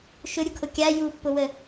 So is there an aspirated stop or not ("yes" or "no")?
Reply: yes